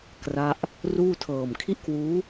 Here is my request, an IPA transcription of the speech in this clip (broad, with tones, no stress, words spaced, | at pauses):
kra˦˥ʔ | ruː˥˩tʰɤː˨˩m kʰi˥˩ʔkwuː˦˥